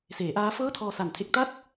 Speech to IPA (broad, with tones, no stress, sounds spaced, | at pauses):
s eː˩˦ ʔ aː˦˥ f ɤː˥˩ tʰ ɔː˧ s a˨˩ n tʰ e˦˥ k̚ t a˥˩ t̚